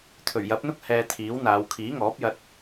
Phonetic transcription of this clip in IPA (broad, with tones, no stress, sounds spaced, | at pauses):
t̪ʰ ɵ˨˩ ɥ j ɐ˨˥ p̚ n̪ ʊ˥ k̚ h ɛː˧ t̪ʰ iː˨˥ w n̪ aː˨˧ w kʰ iː˨˥ ŋ ɔː˨˥ p̚ j ɐ˧ t̚